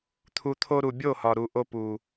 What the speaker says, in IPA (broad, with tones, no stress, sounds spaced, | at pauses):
t̪ʰ u˨ t̪ʰ o˧ ɾ u˨ bʲ o˦˨ h ɒ˨ ɾ u˨ ʔ o˧ p u˨